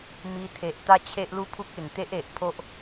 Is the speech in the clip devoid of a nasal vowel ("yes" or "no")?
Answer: yes